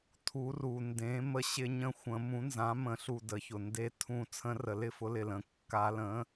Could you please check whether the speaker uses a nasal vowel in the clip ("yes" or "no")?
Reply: yes